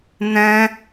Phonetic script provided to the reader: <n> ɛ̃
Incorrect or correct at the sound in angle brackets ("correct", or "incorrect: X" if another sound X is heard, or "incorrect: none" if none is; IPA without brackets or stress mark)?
correct